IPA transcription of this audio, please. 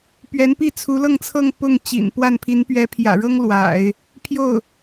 p ɥ ɛ˧˥ n p i˥˩ t͡sʰ u˧˥ l ɤ˥˧ ŋ t͡sʰ ɤ˥˧ ŋ p ʊ˥˩ ŋ t͡ɕ ḭ˨˩ n p w a˥˩ n pʰ i˧˥ n p ɥ ɛ˧˥ pʰ j ä̰˨˩ ɻ ɤ˥ ŋ l w a̰˨˩˦ ɪ̯ | pʰ j o˥˩ ʊ̯

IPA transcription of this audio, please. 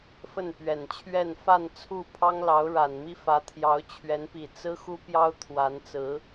f ə˥˩ n p ɥ ɛ˨˩ n t͡ɕʰ ɥ ɛ˥˧ n f a˥˧ n t͡sʰ u˥˩ pʰ ɑ˥ ŋ l ɑ˧˥ ʊ̯ ɻ a˨˩ n m i˥ f ä˧˥ t̪ʰ j ɑ˧˥ ʊ̯ t͡ɕʰ ɥ ɛ˧˥ n p i˨˩ t͡s ɹ̩˥ x u˥ p j ɑ˥ ʊ̯ t̪ʰ w a˧˥ n t͡s ɹ̩˧˥

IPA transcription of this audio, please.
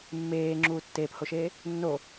mː eː ŋ͡ǁ uː tː eː p h o ʃ eː | nː o

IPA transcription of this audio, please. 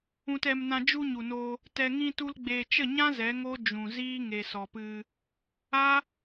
ũ˨ t ɛ˨ m n ã˨ d͡ʒ u˧ ɲ u˨ n oː˧ | t ɛ˨ ŋ ĩ˧ t u˧ l ɡ͡b eː˨ t͡ʃ ə˦˨ ɲ ã˦ z ɛ˨˦ ŋ o˦ d͡ʒ ũ˨ z iː˦ ŋ e˨ s ɔ˨ p ɨ˧ | a˦

